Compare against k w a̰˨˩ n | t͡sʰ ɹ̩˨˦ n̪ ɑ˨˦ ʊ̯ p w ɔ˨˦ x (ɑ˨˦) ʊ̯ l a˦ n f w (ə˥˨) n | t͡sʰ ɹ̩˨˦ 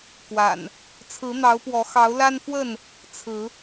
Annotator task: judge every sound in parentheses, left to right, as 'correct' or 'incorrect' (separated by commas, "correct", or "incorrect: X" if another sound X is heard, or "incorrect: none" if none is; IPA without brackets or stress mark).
correct, correct